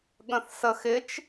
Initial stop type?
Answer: implosive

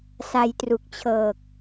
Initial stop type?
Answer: plain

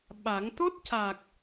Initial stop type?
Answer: implosive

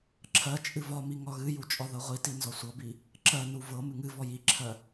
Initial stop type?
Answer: click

